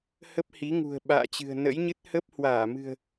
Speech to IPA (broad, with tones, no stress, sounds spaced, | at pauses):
h ə˦˥ p̚ h i˨˦ ŋ ṳ˨˩ ə̯ ɓ a̰ː˧˨ t͡ɕ ɨ̤˨˩ ə̯ n ə̰˧˥ j ɲ ɨ˦˥ t̚ h ə˦˥ p̚ h w aː˧˩ m ɨ̤˨˩ ə̯